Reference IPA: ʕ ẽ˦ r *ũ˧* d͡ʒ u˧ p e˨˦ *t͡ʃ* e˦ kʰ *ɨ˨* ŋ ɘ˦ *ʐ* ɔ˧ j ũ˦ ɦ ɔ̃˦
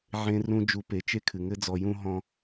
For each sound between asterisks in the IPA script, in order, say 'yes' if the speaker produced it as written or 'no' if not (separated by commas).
no, yes, yes, no